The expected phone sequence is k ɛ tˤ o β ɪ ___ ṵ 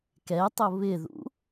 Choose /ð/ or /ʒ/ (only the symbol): ð